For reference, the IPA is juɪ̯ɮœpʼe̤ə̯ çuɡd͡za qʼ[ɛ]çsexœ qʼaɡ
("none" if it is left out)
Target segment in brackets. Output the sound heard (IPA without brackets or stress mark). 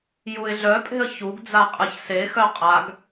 ɨ